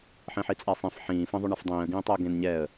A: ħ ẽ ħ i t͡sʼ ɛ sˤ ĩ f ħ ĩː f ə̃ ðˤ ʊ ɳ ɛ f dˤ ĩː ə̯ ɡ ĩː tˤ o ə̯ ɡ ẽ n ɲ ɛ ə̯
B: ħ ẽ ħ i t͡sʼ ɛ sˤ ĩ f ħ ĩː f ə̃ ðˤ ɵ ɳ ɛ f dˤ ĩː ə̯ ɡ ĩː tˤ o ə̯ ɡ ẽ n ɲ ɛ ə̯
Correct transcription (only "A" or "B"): B